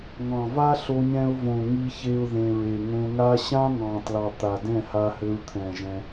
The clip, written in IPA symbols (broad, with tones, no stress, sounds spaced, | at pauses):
ŋ ɑ̃˨ v a˦ ɬ o˧ ɲ ɛ̃˧ ʊ̯ v õ˨ ŋ i˦ ç e˦ ʊ̯ ð ẽ˨ ɹ e˨ ŋ õ˧ ŋ a˦ ɕ ã˦ ŋ ɑ̃˨ t l ɑ˨ t̪ a˨ d ɛ̃˦˨ h a˧ h ɘ˧ ɹ t̪ʰ ɛ̃˨ ʒ ɛ̃˧